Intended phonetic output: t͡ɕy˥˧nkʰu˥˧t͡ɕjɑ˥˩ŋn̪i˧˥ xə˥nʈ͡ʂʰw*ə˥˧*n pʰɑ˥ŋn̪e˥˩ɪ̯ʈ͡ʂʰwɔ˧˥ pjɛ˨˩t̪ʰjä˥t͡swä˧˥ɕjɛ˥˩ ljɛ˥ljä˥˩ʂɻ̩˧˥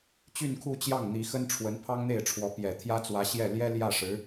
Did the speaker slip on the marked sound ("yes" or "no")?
yes